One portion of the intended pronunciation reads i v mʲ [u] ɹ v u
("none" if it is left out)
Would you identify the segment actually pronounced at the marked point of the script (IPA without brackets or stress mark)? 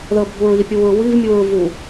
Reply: u